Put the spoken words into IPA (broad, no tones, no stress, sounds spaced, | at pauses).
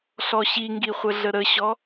ɬ ɔ ɕ i ŋ ɡ i χʷ ə ɮ ə ɾ ə ɕ ɔ